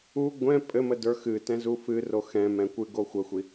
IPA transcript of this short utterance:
u ɡʷɛ̃ pʼɘmədə˞ xɨtɛ̃zu fɨro xɛ̃mɛ̃kʷɨ ɡoxʷəxʷi

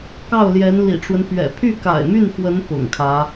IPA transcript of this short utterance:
kɑ˥˩ʊ̯ljɛ˧˥nlḭ˨˩ʈ͡ʂwə˦n pɥɛ̰˨˩ pʰy˥˩ka̰˨˩ɪ̯my˥˩nxwə˧˥n pʊ̰˨˩ŋkʰä˧˥

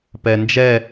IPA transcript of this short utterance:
pɛnd͡ʒɛ

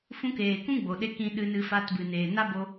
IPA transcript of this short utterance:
fũ˧keː˨ kũ˦ɡ͡bo˨ɗe˧ kĩ˧ɗɨ˧nɨ˧ fa˧tbɨ˨ neː˨na˦bo˧

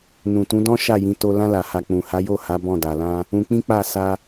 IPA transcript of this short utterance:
nũ˨tũ˨˦dɔ̃˦ ʃa˦˨jĩ˨˦ to˧ lã˧la˨ha˨ k͡pũ˨ha˨˦jo˦˨ha˨˦ bɔ̃˦˨ da˨lã˧ | ũ˧k͡pĩ˦k͡pa˦˨ sa˧

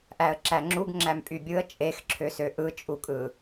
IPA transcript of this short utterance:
ʔæə̯ǁæŋ͡ǁuɡ ŋ͡ǁæmpʼybʲɯə̯ t͡ʃʼexǁʰøsø ʔɯt͡ʃʼukʼɯ

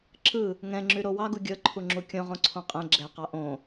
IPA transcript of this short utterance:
ǁɯ | ŋɛ̃ŋ͡ǁyɾo wɑɡu ɡʲɤǃʰuŋ͡ǁu kʲõʁõǀʰõ qʼɛ̃ ɡ͡ǁɛqɑ ʔõ

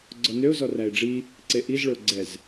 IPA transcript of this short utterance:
ɡ͡ǀɔnøʊ̯ zɔræɪ̯ɖ͡ʐi | ǀeʔiz ɭɵʊ̯ɡ͡ǀɛz

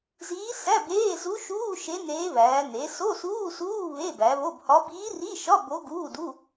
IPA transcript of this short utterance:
ziː˧˥sæ˧˥˧beː˧˥˧ zu˧˥ʃuː˧˥˧ ʃe˧˥ neː˧˥βæː˩˧ ne˩˧ so˧˥˧suː˧˥˧suː˧˥˧ βe˧˥˧bæ˩˧βo˧˥˧bhɒ˧˥ biː˧˥ri˧˥˧ʃɒ˧˥˧ bo˧˥ɡuː˧˥˧du˧˥˧

